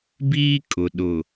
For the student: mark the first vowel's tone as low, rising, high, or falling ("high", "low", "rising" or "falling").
high